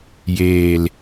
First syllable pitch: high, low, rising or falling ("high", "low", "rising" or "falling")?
low